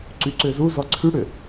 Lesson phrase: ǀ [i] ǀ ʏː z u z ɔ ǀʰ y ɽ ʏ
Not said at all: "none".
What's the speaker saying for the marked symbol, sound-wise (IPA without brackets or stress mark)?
y